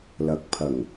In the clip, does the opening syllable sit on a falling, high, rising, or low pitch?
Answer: rising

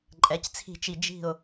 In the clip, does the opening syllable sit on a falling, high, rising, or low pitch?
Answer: rising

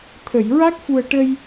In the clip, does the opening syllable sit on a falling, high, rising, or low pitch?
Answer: low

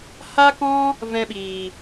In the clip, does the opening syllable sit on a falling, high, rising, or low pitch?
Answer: high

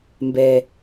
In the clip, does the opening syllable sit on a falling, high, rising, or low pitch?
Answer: low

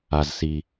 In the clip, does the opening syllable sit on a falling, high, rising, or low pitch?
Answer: low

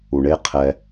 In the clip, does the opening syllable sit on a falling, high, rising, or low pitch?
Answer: low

